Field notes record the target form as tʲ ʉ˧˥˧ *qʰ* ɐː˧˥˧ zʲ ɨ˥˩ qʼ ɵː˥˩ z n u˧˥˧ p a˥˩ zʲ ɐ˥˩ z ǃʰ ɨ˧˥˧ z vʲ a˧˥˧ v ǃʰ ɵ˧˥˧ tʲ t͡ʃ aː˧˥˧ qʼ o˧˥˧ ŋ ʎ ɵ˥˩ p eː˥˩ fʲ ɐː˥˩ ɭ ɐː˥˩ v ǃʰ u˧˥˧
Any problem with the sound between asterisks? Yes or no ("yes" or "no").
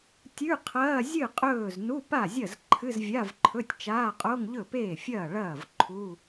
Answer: no